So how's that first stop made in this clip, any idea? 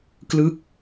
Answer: plain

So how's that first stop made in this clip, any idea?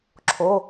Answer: click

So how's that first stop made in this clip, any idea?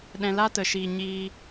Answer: implosive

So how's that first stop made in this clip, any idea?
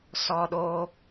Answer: implosive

